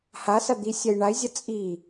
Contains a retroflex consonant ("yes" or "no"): yes